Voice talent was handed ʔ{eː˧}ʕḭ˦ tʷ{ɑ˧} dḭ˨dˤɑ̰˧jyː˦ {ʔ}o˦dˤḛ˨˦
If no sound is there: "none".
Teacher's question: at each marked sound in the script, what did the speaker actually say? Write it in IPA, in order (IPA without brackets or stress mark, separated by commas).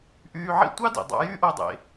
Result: yː˧, ɑ˦, ʔ